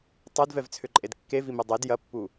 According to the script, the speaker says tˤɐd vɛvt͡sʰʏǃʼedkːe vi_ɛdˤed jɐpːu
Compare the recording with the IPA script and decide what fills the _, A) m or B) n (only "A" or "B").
A